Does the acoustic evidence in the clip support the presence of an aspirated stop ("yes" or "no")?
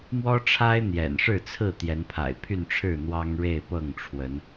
yes